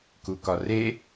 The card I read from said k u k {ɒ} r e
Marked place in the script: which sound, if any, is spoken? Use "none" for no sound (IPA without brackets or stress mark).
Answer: ɒ